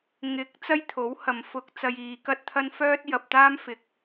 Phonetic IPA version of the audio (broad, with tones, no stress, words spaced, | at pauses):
ŋɪ˨˥k̚ t͡sɐ˥jt̪ʰo˨˥whɐ˨mfʊ˧k̚ t͡sɐ˧jiː˨˧kɐ˥t̚t̪ʰɐ˥n fœː˥t̚jɐ˨p̚ t̪aː˥mfɪ˨k̚